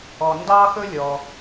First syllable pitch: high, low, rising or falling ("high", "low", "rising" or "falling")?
low